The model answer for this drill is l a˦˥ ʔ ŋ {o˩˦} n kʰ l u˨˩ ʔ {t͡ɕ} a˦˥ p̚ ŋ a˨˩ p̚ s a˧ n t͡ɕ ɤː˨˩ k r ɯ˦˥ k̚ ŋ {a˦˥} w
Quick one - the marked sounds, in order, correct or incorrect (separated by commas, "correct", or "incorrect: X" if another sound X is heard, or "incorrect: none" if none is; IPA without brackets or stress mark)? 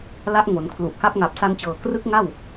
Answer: correct, incorrect: k, incorrect: a˥˩